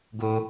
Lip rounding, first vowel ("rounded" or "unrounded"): rounded